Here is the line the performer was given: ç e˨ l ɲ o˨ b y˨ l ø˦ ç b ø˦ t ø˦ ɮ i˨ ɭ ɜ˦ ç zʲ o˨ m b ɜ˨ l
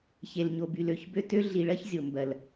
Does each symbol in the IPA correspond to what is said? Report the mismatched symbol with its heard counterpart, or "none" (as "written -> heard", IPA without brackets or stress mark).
none